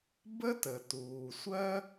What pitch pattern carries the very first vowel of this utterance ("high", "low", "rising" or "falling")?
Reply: high